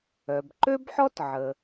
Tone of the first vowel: low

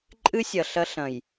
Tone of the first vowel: high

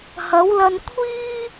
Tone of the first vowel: rising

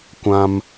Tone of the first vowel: high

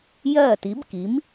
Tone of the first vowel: falling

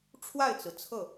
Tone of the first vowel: falling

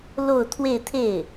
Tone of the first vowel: falling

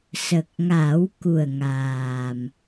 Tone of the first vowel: low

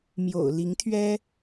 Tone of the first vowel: low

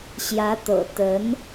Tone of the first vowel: rising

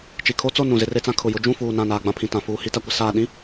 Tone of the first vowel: low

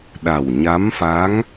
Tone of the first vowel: low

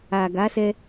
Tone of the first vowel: low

